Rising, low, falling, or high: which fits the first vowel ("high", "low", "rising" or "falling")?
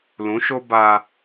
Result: rising